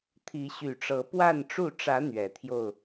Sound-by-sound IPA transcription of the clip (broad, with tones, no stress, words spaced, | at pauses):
t̪ʰi˨˦ɕy˨˩ʈ͡ʂɤ˨˦pwa˥˨n ʈ͡ʂu˥˨ ʈ͡ʂä˨˦ n̪ɥɛ˨˩t̪ʰjo˥˨ʊ̯